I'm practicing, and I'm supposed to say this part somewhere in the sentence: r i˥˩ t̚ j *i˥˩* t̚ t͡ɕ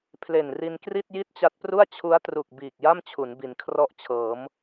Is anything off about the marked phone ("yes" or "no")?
no